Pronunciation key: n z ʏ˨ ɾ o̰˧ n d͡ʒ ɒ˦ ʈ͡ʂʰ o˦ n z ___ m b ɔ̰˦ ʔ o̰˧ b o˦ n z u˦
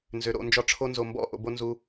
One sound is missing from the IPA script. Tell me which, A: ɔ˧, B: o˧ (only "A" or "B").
B